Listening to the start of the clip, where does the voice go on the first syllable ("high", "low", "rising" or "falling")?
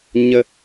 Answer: high